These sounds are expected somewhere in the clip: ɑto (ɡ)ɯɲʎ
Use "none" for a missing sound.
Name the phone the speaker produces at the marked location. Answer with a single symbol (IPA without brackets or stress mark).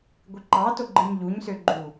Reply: ɡ͡ǃ